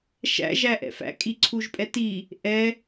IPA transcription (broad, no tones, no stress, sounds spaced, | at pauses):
ʃ æ̰ ʒ æ ʔ ɛ̰ f æ̰ kʼ i ǀʰ u ʒ pʼ ɛ t i | ʔ ɛ